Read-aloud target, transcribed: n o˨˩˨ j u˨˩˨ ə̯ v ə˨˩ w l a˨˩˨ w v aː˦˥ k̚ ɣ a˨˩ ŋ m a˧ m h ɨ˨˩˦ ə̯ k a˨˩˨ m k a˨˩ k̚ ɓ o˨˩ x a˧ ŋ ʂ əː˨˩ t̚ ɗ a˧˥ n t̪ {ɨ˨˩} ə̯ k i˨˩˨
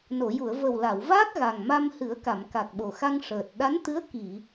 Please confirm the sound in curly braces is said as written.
no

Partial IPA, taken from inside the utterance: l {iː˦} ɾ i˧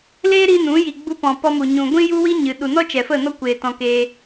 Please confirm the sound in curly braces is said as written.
no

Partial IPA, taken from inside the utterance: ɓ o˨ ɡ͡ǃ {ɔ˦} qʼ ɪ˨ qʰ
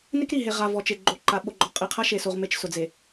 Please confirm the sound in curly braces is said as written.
no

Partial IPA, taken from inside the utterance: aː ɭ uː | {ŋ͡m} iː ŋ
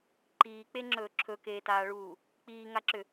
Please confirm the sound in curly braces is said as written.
no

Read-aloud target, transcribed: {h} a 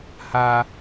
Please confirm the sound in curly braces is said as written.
yes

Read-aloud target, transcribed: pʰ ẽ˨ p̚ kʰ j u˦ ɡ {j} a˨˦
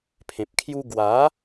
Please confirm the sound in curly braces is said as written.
no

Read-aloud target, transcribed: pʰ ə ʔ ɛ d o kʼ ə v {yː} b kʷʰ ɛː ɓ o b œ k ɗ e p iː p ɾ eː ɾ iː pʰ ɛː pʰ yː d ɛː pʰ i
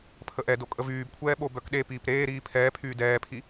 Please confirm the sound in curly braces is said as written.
yes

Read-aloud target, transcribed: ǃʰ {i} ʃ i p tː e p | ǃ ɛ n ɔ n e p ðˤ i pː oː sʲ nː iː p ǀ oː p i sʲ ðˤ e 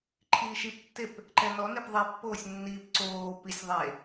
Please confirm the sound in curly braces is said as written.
no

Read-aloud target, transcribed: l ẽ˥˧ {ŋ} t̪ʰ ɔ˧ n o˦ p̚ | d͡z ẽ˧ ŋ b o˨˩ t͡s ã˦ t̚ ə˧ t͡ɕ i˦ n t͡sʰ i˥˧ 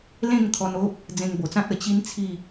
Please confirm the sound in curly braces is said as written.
yes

